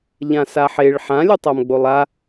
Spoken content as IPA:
ʎ ã s a ħ e ɭ ħ ã lʲ ɯ tˤ a m ɡ͡b o lˠ a

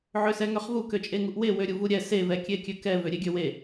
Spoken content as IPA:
ʕ ø s ɛ ŋ ø χ v u k ø t͡ʃʼ e ŋ u ʔ w e w ø ɾʲ u v u ɾʲ ɛ s e v ɛ kʲ e kʲ ø k ɛ v ø ɾʲ e ɡʲ ø w e

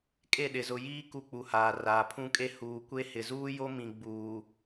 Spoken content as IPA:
kʼ e˦˨ ɗ ɪ˨ z ʊ˨ j iː˦ k u˦ k͡p u˨ h aː˨ r aː˨ pʰ ũ˦ kʼ e˦ h uː˨ kʷ e˦ h ɪ˨ z uː˦ j o˦ m ĩ˨ ɡ͡b uː˨

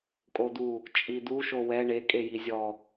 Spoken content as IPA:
kʼ o d̪ u | t͡ʃʼ i d̪ u ʃ o w ɛ ɳ e kʼ e j i zʲ ɔ

